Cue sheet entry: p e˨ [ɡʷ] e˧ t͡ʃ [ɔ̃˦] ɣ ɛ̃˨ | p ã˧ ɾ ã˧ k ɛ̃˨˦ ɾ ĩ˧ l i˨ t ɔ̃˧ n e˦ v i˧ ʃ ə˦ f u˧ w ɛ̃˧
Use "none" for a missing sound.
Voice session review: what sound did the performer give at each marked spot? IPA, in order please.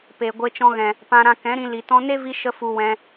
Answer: ɡʷ, ɔ̃˧

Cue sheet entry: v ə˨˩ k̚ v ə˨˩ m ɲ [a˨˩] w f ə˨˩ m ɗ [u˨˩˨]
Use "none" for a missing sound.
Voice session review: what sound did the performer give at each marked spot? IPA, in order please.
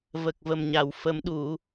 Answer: a˨˩˨, u˨˩˨

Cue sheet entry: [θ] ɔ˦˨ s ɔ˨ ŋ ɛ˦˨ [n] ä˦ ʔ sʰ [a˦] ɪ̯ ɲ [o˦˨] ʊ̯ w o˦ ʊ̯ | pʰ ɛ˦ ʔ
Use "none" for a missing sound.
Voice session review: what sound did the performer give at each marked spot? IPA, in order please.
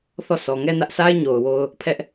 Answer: θ, n, a˦, o˨

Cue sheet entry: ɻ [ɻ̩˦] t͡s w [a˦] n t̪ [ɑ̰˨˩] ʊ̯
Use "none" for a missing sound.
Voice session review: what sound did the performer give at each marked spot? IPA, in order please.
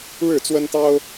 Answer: ɻ̩˥˨, ə˦, ɑ˦

